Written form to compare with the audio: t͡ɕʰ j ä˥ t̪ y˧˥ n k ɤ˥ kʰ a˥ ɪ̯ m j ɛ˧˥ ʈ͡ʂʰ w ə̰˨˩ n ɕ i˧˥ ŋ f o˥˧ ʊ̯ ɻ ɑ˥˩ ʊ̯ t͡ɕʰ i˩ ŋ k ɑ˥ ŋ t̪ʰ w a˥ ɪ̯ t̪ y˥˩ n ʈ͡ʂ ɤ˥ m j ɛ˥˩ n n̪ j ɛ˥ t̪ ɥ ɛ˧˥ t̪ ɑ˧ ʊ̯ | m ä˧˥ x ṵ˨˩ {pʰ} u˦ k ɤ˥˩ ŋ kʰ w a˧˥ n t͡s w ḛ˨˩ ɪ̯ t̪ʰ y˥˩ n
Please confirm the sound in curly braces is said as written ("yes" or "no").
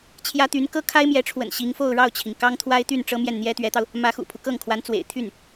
yes